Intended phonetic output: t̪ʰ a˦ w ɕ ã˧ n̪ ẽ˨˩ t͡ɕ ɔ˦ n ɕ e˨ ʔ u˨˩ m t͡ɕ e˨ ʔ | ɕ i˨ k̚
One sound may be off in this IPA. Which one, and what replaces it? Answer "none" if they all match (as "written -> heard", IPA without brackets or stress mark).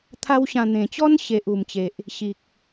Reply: none